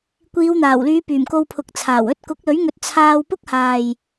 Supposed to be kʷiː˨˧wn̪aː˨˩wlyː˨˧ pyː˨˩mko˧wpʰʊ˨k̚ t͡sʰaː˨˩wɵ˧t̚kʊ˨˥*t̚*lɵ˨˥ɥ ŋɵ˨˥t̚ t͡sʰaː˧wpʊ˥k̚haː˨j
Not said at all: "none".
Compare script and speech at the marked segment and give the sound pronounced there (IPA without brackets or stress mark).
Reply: k̚